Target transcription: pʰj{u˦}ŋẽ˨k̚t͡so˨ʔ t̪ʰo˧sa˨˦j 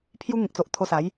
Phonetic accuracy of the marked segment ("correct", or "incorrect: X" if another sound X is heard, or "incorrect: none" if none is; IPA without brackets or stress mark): correct